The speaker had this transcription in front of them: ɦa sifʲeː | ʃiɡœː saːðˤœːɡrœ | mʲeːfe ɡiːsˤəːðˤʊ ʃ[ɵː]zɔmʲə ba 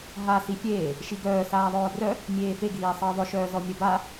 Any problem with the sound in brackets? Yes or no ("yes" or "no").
yes